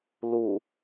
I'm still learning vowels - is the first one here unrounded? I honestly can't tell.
no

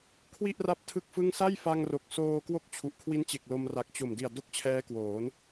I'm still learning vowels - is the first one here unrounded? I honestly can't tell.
yes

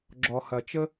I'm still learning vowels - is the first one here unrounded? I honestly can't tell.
no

